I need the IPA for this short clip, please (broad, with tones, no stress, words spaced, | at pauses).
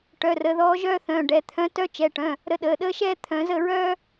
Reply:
ʈœ˩˧˩rə˩˧ ðɔː˧˥ʒœː˥θœ̃ː˩˧˩ ɖɛ˩˧t̪ʰœ̃˧˥ tœ˧˥t͡ʃɛ˩˧˩ʈœ̃˩˧˩ | ɾə˧˥ɗəː˩˧˩ɗəː˥ʃɛː˥ t̪ʰœ̃˩˧zə˥˨ɹœː˥